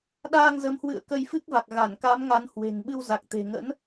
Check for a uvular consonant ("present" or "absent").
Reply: absent